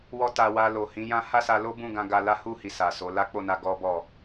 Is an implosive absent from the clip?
yes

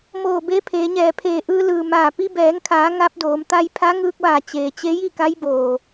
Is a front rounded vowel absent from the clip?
yes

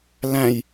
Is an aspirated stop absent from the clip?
yes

